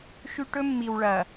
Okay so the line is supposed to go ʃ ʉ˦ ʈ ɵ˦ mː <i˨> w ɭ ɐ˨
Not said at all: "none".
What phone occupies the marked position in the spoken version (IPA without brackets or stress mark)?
i˨